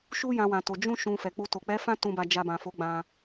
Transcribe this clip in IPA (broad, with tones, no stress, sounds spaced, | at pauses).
ʃ u˧ j ã˧ w ã˨ t o˨ d͡ʒ ũ˧ ʃ ũ˨ f ɛ˨ k͡p u˧ t o˨ k͡p ɛ˨˦ f ã˦ t ũ˧ b a˧ d͡ʒ a˧ b ã˨ f o˨˦ ɡ͡b ã˧